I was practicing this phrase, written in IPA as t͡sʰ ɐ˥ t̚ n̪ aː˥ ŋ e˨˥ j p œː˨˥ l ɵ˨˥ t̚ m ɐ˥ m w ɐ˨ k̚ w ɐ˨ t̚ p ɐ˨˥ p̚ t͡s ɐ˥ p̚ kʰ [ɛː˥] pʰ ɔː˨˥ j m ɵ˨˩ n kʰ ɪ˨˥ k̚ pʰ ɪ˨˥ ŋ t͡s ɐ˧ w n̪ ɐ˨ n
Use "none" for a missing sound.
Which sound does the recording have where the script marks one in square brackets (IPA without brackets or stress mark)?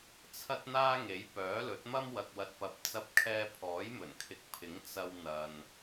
ɛː˥